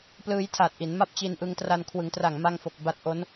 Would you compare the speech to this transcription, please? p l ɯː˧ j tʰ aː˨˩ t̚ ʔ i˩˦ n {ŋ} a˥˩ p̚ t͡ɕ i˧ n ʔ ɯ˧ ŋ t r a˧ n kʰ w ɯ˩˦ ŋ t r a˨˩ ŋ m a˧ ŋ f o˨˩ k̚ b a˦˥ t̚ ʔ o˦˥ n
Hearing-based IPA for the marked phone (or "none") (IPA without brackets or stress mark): m